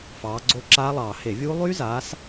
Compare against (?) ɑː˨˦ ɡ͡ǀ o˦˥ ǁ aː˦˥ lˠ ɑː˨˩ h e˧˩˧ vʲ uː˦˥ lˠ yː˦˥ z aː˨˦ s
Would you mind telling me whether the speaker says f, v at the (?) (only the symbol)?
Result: f